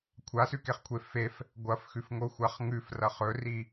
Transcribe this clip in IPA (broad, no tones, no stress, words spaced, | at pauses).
kʷʰasʉkeχkʷʰe fef | ɡʷɐfxʉfŋoxʷaχ ŋʉfrɐχ ɵri